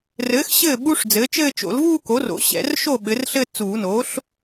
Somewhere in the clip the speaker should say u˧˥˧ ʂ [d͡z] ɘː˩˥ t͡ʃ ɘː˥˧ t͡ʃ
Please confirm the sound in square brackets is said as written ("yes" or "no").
yes